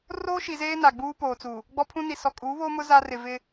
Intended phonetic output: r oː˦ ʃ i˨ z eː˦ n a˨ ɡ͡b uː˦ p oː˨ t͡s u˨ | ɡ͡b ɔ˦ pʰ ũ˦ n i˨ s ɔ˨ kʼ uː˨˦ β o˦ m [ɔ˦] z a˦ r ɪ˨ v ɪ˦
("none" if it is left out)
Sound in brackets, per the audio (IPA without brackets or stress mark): ʊ˦